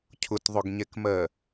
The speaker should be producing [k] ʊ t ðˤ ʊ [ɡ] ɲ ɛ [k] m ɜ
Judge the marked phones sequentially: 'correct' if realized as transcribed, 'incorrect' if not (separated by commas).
incorrect, correct, correct